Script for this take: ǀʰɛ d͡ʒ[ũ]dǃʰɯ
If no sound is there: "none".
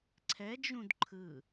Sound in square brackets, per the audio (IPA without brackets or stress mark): ũ